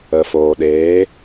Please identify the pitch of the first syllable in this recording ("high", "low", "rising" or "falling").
low